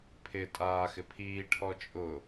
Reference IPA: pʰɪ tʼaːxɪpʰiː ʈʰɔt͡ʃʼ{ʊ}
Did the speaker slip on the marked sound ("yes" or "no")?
no